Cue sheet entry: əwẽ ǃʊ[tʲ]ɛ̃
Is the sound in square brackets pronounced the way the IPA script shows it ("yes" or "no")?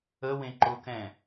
no